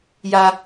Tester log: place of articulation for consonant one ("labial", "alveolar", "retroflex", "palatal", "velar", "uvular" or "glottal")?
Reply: palatal